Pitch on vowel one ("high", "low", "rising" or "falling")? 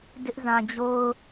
high